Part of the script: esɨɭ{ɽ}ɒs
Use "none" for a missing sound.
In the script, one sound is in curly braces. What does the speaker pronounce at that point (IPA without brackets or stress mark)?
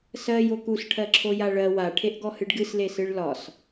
l